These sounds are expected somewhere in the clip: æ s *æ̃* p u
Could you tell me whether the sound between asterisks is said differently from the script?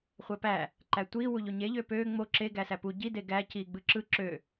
yes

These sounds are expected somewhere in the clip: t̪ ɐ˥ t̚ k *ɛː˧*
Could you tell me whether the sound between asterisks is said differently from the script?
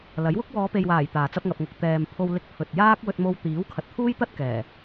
yes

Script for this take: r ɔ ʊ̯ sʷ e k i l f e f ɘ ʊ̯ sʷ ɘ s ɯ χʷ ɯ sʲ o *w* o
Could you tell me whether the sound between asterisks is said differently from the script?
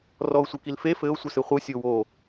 no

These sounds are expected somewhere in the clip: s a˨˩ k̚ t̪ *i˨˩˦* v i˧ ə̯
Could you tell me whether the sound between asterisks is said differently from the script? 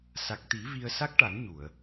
no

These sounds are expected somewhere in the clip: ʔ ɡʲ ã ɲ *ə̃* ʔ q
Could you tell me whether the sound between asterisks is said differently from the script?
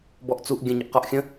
yes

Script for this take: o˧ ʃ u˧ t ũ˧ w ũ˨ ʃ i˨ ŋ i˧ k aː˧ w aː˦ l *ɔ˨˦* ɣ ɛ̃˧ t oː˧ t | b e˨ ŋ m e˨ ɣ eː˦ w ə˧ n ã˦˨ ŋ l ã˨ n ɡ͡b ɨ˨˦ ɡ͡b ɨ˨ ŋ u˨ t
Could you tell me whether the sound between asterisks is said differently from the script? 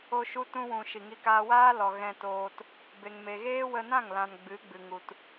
yes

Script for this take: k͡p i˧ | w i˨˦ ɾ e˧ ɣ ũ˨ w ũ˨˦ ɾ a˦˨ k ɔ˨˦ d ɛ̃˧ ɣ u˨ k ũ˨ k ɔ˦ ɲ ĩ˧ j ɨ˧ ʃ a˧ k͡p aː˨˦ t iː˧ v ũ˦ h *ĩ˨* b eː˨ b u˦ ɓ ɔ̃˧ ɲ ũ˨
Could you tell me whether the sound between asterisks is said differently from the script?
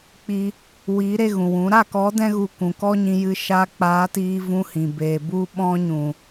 no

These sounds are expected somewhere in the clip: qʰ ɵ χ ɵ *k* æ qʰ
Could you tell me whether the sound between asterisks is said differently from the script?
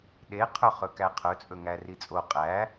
no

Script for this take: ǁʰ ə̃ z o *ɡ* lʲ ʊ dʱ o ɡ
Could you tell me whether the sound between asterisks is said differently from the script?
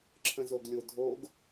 no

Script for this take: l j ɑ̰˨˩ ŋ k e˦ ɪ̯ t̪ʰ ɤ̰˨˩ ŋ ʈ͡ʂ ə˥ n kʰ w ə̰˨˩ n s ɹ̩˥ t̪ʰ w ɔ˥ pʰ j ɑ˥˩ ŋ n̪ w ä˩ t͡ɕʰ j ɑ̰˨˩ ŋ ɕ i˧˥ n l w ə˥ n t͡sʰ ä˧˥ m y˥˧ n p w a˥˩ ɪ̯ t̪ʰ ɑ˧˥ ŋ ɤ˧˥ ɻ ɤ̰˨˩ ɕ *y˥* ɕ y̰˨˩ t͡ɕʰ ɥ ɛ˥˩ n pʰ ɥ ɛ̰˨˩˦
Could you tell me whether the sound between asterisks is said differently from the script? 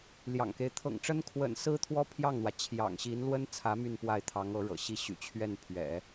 yes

